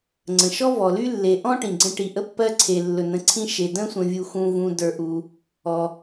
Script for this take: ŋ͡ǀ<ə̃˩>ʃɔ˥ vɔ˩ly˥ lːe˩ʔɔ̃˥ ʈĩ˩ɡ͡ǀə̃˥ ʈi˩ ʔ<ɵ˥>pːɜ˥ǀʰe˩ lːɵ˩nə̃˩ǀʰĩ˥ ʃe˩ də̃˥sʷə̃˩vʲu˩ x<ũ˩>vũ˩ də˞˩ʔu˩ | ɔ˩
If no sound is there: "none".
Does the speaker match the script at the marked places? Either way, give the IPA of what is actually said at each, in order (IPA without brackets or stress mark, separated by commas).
ə̃˩, ə˥, ũ˩